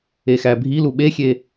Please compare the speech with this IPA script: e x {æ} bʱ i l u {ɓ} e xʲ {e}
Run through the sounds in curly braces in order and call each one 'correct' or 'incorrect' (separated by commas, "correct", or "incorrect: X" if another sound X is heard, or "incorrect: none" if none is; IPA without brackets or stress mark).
correct, correct, correct